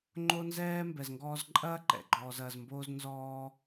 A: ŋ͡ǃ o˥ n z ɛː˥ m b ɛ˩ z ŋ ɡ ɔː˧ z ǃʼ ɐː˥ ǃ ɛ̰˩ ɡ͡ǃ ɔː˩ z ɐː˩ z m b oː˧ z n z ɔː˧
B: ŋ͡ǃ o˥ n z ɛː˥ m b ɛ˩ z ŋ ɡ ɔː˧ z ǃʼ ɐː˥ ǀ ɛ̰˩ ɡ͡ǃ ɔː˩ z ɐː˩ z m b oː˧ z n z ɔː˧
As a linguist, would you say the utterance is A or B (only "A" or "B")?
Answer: A